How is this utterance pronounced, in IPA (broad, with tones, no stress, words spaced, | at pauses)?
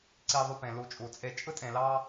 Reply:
ǀi˧ðˤy˧ pẽ˨ lu˨˦t͡ʃʼu˨t͡sʼe˧ t͡ʃʼɯ˦tʼẽ˧ lɑ˦